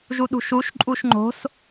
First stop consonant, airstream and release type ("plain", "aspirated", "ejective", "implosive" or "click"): implosive